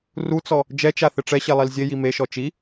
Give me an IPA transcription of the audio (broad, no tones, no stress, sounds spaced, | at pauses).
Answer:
r u t͡s ɔ | d͡ʒ ɛ t͡ʃ a θ ɪ ʈ͡ʂ ɛ ɕ ɛ lˠ i l zʲ e j i m e ʃ ɔ t͡ʃ i